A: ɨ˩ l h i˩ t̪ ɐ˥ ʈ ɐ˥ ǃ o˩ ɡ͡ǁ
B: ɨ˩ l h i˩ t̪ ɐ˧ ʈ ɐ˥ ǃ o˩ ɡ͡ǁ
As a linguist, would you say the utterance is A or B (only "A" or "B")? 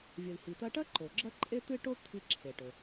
B